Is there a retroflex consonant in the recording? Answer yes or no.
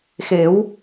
no